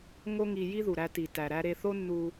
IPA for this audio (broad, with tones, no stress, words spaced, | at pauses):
ŋo˥ŋi˧ ji˥ðu˩ɾæ˧ti˩ tæ˩ɾæ˧ɾe˧θo˥ nːu˧